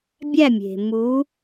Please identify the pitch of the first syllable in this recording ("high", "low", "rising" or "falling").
falling